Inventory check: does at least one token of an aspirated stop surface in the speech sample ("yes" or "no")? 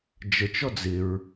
no